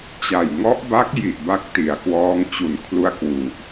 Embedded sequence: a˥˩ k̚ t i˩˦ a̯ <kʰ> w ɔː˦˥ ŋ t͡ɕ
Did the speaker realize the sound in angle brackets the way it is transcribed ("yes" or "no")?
no